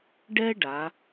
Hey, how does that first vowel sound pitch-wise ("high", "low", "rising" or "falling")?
high